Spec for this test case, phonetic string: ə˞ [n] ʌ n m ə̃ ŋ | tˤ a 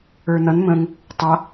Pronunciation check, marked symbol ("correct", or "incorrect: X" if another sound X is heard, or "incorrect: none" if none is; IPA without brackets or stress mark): correct